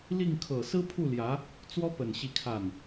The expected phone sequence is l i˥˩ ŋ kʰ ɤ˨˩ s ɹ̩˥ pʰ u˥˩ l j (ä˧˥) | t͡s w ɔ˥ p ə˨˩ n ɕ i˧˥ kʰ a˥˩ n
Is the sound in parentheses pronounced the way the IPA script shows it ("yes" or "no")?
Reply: yes